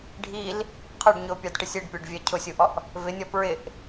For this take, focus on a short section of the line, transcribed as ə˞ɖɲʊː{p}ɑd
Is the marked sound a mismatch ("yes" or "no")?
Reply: yes